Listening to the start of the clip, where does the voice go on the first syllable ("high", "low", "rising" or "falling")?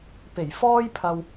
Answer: low